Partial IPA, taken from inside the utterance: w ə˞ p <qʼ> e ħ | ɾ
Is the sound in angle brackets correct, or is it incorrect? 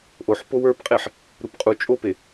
correct